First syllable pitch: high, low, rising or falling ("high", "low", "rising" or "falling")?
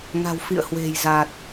low